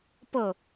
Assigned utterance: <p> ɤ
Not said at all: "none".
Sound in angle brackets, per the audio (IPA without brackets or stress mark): p